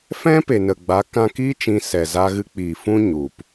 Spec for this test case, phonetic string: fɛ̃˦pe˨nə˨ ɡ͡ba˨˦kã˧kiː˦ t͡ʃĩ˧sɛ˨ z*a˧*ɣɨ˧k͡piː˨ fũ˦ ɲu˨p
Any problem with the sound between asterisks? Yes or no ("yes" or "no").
no